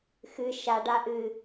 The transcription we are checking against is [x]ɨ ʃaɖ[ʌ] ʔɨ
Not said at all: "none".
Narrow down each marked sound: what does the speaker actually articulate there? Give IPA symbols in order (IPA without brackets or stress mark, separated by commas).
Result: x, a